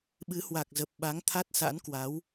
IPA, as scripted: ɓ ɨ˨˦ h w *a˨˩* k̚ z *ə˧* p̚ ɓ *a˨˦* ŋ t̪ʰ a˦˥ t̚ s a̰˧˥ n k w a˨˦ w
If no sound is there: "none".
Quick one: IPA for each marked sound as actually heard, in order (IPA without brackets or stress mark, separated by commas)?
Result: a˨˩, ə˨˩, a˨˦